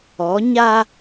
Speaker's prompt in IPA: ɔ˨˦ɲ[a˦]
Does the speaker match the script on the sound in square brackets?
yes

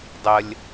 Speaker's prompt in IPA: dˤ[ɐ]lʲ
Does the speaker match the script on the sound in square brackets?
no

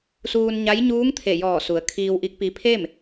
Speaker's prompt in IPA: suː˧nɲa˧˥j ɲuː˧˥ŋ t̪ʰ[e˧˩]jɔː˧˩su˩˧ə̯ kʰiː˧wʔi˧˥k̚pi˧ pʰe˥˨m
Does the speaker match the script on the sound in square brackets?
yes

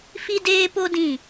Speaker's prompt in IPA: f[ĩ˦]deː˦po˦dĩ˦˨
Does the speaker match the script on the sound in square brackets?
no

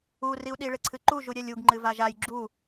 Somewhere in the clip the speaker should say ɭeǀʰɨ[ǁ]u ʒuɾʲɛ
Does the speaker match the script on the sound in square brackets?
no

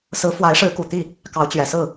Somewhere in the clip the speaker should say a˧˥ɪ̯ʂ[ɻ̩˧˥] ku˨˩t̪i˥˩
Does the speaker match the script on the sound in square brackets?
yes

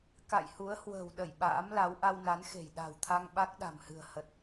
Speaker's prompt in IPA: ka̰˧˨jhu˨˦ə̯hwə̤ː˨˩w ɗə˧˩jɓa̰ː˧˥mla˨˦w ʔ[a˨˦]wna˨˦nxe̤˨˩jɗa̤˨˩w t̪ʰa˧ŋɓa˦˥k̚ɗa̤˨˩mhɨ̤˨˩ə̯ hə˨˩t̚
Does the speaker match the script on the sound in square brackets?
no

